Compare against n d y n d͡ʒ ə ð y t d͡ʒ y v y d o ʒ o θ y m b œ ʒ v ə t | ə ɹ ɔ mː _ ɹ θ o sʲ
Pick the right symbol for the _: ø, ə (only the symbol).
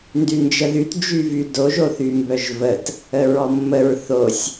ə